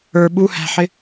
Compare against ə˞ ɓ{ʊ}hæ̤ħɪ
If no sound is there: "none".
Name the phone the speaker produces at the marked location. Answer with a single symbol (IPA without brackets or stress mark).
u